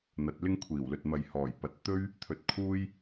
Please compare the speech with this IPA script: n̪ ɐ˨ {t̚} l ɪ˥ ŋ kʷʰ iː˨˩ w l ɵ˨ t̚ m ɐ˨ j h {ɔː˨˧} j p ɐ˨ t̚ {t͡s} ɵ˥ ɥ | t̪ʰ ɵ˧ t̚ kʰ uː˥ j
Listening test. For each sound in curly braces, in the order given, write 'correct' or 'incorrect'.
correct, incorrect, incorrect

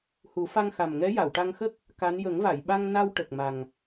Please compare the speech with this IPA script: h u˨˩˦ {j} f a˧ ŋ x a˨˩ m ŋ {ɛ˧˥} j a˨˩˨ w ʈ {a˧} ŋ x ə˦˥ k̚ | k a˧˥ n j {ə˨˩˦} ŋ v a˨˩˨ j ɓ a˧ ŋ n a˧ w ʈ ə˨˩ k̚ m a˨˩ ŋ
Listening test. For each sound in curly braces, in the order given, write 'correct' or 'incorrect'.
incorrect, correct, correct, correct

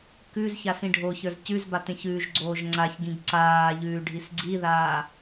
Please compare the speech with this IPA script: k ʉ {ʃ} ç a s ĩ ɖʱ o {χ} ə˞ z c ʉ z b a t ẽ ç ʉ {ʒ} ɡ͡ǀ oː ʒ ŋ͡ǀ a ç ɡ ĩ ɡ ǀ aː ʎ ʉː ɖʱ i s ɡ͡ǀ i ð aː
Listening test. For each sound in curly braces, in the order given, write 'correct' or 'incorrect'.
incorrect, incorrect, correct

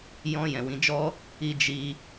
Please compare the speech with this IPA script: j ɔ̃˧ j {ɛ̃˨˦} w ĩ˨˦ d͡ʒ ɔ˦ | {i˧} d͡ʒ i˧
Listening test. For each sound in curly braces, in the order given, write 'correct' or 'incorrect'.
incorrect, correct

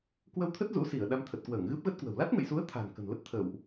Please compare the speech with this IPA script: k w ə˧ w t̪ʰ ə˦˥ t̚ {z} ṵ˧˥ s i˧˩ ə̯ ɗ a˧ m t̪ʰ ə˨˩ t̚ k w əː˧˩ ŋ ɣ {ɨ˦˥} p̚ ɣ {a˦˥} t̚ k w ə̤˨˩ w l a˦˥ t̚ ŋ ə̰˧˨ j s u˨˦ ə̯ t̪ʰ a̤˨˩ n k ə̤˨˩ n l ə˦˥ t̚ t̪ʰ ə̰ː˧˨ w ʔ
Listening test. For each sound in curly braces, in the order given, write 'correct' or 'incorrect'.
correct, correct, incorrect

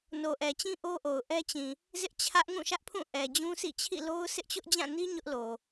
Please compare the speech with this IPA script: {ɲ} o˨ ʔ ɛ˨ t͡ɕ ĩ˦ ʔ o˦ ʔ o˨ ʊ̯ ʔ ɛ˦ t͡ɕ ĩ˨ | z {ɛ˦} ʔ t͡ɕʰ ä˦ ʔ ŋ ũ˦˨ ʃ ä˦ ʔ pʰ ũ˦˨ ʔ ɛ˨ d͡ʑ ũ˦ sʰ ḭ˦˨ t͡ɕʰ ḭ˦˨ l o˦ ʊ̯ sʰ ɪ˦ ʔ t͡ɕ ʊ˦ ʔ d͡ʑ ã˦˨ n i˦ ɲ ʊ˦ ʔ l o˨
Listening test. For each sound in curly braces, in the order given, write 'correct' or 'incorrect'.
incorrect, incorrect

